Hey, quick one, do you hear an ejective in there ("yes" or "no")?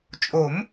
yes